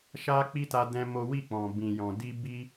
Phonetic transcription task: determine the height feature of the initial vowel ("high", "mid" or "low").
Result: low